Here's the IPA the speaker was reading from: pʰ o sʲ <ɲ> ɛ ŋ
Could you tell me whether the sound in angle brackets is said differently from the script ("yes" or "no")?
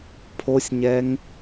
no